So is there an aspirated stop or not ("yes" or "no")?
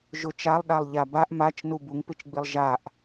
no